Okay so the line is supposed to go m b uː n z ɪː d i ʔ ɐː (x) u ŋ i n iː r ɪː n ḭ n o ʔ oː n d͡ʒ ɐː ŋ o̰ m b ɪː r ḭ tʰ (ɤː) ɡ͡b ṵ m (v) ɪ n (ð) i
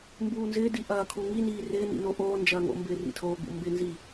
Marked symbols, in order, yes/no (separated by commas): no, no, no, no